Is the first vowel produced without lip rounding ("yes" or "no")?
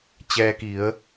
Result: yes